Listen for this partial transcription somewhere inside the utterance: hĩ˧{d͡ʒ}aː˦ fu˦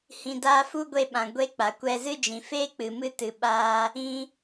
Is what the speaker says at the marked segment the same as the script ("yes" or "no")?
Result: no